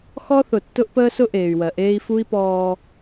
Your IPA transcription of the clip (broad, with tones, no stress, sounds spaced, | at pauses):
x ɔ˦ θ ʊ˨ tː ʊ˦ ʔ p əː˦ s ʊ˦ ʔ eː˨ y̯ w ɜ˨ ʔ eː˦ i̯ f u˦ i̯ p ɔː˦